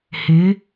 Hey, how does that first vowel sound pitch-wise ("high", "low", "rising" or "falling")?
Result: rising